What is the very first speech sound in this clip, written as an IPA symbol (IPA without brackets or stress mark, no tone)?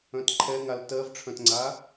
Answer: œ̃